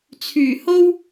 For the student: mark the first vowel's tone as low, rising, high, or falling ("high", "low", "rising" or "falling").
low